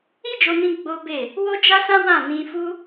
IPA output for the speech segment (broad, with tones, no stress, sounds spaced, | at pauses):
i˦ d͡ʒ o˧ n ĩ˧ ɡ͡b o˦ b e˦˨ | w o˦ d͡ʒ a˦ s ã˦ w ã˦˨ n ĩ˧ f u˦